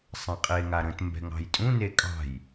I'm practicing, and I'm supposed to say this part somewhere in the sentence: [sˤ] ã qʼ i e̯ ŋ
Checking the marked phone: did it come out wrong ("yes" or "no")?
no